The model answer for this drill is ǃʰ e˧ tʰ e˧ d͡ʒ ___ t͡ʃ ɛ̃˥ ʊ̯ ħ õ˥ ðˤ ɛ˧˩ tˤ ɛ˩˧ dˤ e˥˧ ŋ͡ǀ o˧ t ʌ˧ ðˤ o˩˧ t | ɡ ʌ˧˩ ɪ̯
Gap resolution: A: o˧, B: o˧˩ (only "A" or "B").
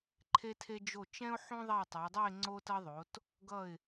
B